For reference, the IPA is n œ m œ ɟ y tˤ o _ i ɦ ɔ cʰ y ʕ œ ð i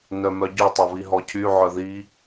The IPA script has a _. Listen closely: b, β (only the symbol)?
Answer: β